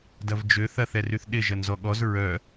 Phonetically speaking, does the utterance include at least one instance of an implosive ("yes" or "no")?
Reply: yes